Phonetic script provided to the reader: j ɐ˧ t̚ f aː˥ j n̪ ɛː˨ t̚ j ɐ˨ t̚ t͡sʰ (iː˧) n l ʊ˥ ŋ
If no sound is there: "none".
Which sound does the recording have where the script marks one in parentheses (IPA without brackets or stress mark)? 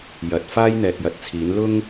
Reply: iː˨˥